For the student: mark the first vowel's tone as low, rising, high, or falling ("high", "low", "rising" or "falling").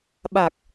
low